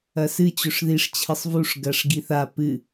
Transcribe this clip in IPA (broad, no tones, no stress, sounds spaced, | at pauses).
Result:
ɐ s ɨ t͡ɕ ɵ ʂ ð i ʂ t͡ɕʰ ɨ sˤ v u ʂ ɡ ɐ ʂ ɡ i θ a p ɨ